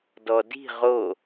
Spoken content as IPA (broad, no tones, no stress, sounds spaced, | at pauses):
d ɔ d i̤ ʁ o